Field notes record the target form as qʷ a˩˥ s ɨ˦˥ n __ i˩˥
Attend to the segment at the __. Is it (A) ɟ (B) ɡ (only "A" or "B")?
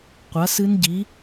A